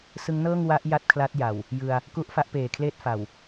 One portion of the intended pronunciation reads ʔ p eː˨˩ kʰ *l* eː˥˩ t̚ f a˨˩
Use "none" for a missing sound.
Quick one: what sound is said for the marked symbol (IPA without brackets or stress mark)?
l